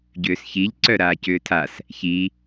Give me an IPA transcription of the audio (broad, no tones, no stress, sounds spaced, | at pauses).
ɟ ʏː s ç i ʎ ǀ œ ɾ aː c ʏː tʰ a s | ç i